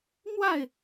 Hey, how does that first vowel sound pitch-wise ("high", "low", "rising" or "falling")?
falling